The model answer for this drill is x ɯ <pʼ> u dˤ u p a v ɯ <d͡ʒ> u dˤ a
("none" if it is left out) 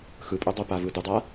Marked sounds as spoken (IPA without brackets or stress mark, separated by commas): pʼ, d